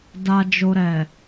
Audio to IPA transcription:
d a˧ d͡ʒ o˧ ɾ ɛ˨

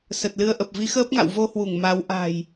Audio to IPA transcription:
s ə˨˩ t̚ l ɨ˧ ə̯ ʔ ə˨˩ p̚ v i˨˦ x əː˦˥ p̚ ŋ a̰˧˨ w v o˧ h w u˧˩ ŋ m a˨˦ w ʔ a̤˨˩ j

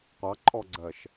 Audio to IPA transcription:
qʷ ɑ ǃʼ ɔ ɡ͡ǀ ɜ ʃ

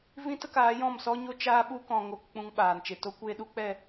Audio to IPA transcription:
v ĩ˦ t ə˧ k aː˨˦ j ɔ̃˦˨ m s ɔ˦ ɲ o˦ t͡ʃ aː˦ ɓ u˦ k ɔ̃˨ ŋ o˧ k k͡p ũ˧ ŋ ɓ aː˨ n t͡ʃ e˨ t o˦ kʷ eː˧ ɗ u˧ k͡p ɛ˦˨

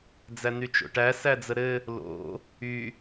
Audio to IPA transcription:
d͡z æ n y t͡ʃ o̰ ʈ æ s æ d͡z ə ɾ ɘ | l o̰ | y

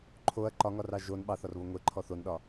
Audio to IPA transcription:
ǃʰ o ɐ̯ ǃ ɒ ŋ ɒ r ɑ ʒ o n ɓ ɑ θ ɒ r β o ŋʷ e ǃʰ ɔ θ o n ɗ ɒ

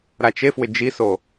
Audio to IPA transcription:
ɾ a t͡ʃ e f w ɪ d͡ʒ i s o

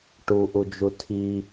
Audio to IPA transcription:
ʈ u ʔ u d͡ʒ u tʰ i

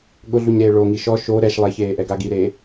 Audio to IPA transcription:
ɠ ʊ ɮ u ɲ ɾ e ɭ o ŋ i ʃ ɔ ʃ o ɾ ɛ ʃ lˠ e ç eː ʔ ɛ ɡ a ɡ i ɾ eː

